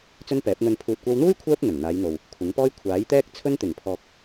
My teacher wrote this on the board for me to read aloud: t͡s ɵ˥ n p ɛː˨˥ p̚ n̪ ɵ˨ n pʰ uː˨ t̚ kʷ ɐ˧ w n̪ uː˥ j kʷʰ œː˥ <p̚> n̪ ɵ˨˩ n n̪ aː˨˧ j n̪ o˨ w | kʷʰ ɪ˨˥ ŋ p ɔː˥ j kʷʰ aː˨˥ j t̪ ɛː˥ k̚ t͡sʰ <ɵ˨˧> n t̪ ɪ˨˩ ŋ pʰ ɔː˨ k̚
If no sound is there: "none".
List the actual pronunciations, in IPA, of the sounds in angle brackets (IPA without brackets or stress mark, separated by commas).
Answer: p̚, ɵ˥